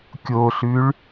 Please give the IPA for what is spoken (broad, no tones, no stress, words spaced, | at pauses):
kʲoɬʉɭ